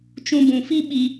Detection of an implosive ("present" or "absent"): present